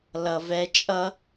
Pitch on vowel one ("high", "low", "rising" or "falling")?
low